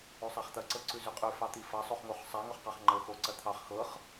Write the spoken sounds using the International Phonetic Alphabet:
ʉ sˤ a χ t̪ ɐ ǀ ɤ ǀ ʉ z ʉ qʼ ʉ f ɑ t̪ i f ɐ sˤ o χ ŋ o χ sˤ a ŋ o χ q ɑ χ ŋ͡ǃ ɤ x o ǀ ɐ t̪ʰ ɑ χ x ɤ χ

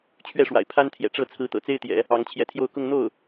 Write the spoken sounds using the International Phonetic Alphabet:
t͡ɕʰ ɥ ɛ˥˩ ʂ w a̰˨˩ ɪ̯ pʰ a˥ n t̪ʰ j ɛ̰˨˩ ʈ͡ʂ ɤ˥˩ t͡sʰ ɹ̩˧˥ t̪ ɤ̰˨˩ t͡s e˥ ɪ̯ t̪ j ɛ̰˨˩˦ | ɑ˧˥ ŋ t͡ɕʰ j ɛ˧˥ t̪ʰ j o˥˧ ʊ̯ k ʊ˥˧ ŋ n̪ o˥˩ ʊ̯

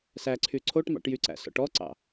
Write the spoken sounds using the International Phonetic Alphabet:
s æ ǀʰ y ǀʰ o ʈ m ɑ̰ ʈ j y ǀ æ̰ s ɔ̰ ʈ ɔ ǀ ɑ̰

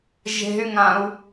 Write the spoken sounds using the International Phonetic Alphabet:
ʒ e̤ y̯ ŋ ã u̯

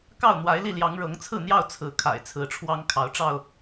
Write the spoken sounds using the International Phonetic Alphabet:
k ɑ˥˨ ʊ̯ n̪ w a˨˦ ɪ̯ l i˥˨ l j ɑ˨˦ ŋ ɻ ɤ˨˦ ŋ t͡sʰ ɹ̩˥˨ n̪ j ɑ˥˨ ʊ̯ t͡sʰ ɹ̩˨˦ kʰ a̰˨˩ ɪ̯ t͡sʰ ɹ̩˨˦ ʈ͡ʂʰ w ɑ˦ ŋ kʰ ɑ˨˦ ʊ̯ ʈ͡ʂ ɑ˥˨ ʊ̯

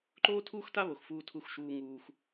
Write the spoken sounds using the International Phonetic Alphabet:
ǃ oː˦ tʰ uː˦ x t a˦ β o˨ x f uː˧ tʰ u˧ x ʃ uː˧ ŋ uː˧ x

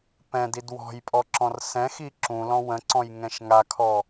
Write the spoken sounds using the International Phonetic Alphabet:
p ɛ̃ d i d w ɔ̤ j pʼ ɔ ǁ ɔ̃ r s ɛ̃ x i ǁ ũ l ɔ̃ w ə̃ ǀ ɔ̃ j ŋ ɛ̃ ʃ ŋ a kʰ ɔ

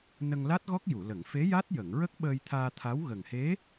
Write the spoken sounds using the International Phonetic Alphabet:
n ə˧ ŋ l a˦˥ t̚ ɣ ɔ˦˥ k̚ j u˨˩˨ l ə˨˩˨ ŋ f e˧˥ j a˦˥ t̚ j ə˨˩˨ ŋ ɹ ə˦˥ k̚ ɓ əː˧ j t̪ʰ aː˧ t̪ʰ a˧˥ w ɣ ə˨˩ ŋ h e˧˥

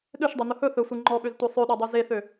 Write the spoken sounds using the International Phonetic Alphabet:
ɗ ø ʃ dˤ e n̪ ɵ h ɵ θ ɵ sʷ e ŋ͡ǃ ɔ ɓ ø z tʷ e sˤ ø ɗ ɔ dˤ ø z e θ ø

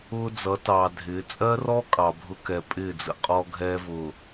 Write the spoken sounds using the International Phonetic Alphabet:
ʊː˦ d͡z ʌ˨˦ t ɑː˨ dʱ ɪː˨˦ t͡sʼ ɜ˦ r ɔ˦ kʼ ɑ˨ bʱ ʊ˦ k ɛ˨ pʼ ɪː˦˨ d͡z ə̰˨ qʼ ɔ˦ ɡʱ ɛː˦ v ʊː˨

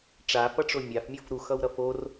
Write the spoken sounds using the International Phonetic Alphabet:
ʈ͡ʂ a f ʌ ʈ͡ʂ o mʲ a f mʲ ʌ f ɾ u x ʌ w ɾ ʌ f o r

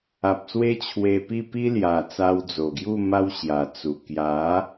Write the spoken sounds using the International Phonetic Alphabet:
a˨ p̚ s w e˦ t͡ɕʰ w e˧ p i˥˧ p i˦ l j a˨˩ t͡s a˧ w d͡z o˨˩ ɡ j u˥˧ m a˦ w ɕ j a˨˩ t͡s u˨˩ k j a˨˦

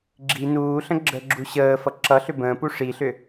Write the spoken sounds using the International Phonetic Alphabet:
ɡ͡ǁ i n uː ɬ ə̃ ɡ͡ǁ ə ɡ͡ǁ u ɕ əː f ʌ ǁ ʌ ɬ ʏ b ə̃ː p u ʂ i ɬ ʏ

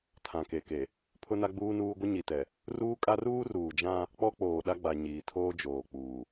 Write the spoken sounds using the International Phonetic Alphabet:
tʰ ã˨ k e˨ k e˨ | pʰ ʊ˦ n a˦ ɡ͡b uː˦ n uː˦ ɡʷ ɪ˦ ɲ i˨ t ɛ˨ | r uː˦ kʼ a˦ r uː˦ r uː˨ d͡ʒ ã˦ | k͡p ɔ˦ k͡p oː˨ ɗ a˦ ɡ͡b a˨ ɲ iː˨ tʰ oː˦ d͡ʒ oː˨ k͡p uː˨

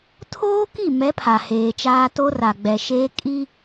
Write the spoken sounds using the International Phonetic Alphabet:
tʰ oː˦ k i˦˨ m ɛ˨˦ pʰ a˨ h eː˨ t͡ʃ aː˦ t o˦ r a˨ ɡ͡b ɛ˨ ʃ eː˦ kʼ i˦

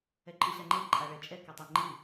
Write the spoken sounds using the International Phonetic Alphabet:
ɛ ǃʼ ɯ ɕ a ŋ͡ǃ e ǃʼ a ɭ ɛ t͡ʃʼ ɛ k a tˤ e ŋ͡ǃ i

